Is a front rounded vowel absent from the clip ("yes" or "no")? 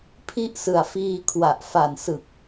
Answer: yes